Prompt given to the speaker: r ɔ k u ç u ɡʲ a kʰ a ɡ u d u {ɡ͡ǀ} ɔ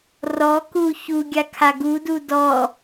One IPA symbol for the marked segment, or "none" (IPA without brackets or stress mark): d